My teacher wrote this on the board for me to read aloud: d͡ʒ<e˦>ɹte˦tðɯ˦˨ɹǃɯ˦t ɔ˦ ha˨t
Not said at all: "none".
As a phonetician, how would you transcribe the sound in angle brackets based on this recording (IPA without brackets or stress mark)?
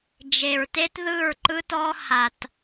e˨